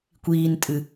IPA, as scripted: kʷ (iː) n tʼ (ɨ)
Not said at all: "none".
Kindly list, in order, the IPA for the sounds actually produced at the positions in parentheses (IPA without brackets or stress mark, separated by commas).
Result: iː, ɨ